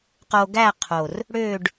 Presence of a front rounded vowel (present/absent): present